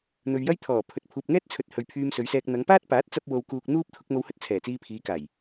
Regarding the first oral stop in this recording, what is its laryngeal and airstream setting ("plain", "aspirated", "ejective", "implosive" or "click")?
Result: aspirated